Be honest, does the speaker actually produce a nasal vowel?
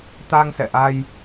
no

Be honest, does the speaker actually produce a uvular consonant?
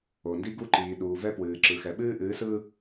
no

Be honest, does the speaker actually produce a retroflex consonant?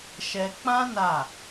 no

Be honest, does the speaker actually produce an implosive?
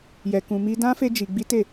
no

